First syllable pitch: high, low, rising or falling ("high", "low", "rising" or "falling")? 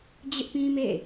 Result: high